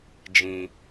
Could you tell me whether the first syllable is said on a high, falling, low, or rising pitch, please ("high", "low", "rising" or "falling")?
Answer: low